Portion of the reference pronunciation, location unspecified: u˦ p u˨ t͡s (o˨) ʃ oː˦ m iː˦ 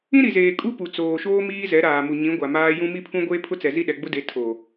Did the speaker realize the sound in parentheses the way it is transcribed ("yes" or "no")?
no